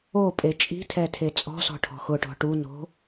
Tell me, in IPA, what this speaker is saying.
o pʼ e t͡ʃʼ i̤ tʰ ɛ tʰ e t͡sʼ ɔ̤ s ɔ̤ ʈʰ ɔ̤ x ʊ ʈ ɔ̤ ʈ u n o̤

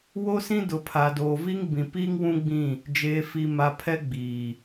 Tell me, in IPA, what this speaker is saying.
w o˦ s ĩ˦ d ʊ˨ pʰ a˨ d oː˨ v iː˦ ŋ b ĩ˨ p iː˦ ŋ w ũ˦ ɡ͡b ĩ˦˨ | d͡ʒ eː˨ f i˨ m a˨ pʰ ɛ˦ ɡ͡b iː˨

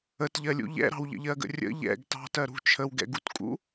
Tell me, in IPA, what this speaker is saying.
ə t ʎ ɜ lʲ ṵ ʎ ɛ̰ ɾ ɑ̤ w ʎ ə̰ ʎ ɜ ɡ ə̰ rʲ ə̰ ʎ ɛ̰ ɡ t ɑ̤ t ɜ ɾ ṳ t͡ʃʰ ə w ɡ ɛ̰ ɡ u t kʼ ṵ

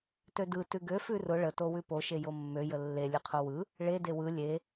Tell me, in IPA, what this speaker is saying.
t ø d ɯ t ʉ ɡ ø f ʉ r ʊ ɭ ə t o w ʉ p o ʃ e j o mː ø j ə lː e lʲ ɯ qʰ o w ɯ | ɭ e d e w ɯ lʲ e

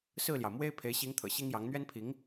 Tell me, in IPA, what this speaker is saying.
s ɹ̩˥˩ l j ɑ˩ ʊ̯ m w e˥ ɪ̯ pʰ e˧˥ ɪ̯ ɕ i˧˥ ŋ t̪ʰ ɤ̰˨˩ ɕ i˥ ŋ j ɑ˧˥ ŋ n̪ ɥ ɛ˥ n pʰ i˧˥ ŋ

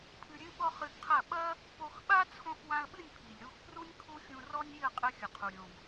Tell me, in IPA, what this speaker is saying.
pʰ ɨ˧ ɾʲ ɨ˦ ɓ ɔ˦ χ ɨ˧ ɡ qʰ ɐ˦˨ ɓ ɐ˦ | p o˧ x ɓ a˦ t͡sʰ õ˧ x w ã˧ ə̯ ɓ ɨ˦˨ nʲ pʰ i˨ lʲ ɾ u˧ x p r u˦ nʲ kʰ u˦ xʲ ũ˧ r ɔ˦ nʲ i˦˨ ə̯ qʼ ɘ˧ xʲ ɐ˨ qʰ u˨ ɾʲ õ˧ ɡ

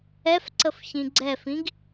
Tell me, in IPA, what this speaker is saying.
ɛ f ǀ ə f ç ĩ ɡ͡ǀ ɛ f ĩ ɡ

